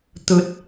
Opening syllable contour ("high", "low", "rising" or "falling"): low